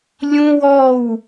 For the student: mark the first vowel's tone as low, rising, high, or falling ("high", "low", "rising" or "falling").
high